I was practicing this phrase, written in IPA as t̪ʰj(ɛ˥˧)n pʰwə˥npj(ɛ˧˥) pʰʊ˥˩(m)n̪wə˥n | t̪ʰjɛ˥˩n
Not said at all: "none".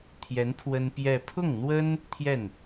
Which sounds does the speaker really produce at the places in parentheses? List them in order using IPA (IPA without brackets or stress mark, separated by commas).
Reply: ɛ˧˥, ɛ˥˧, ŋ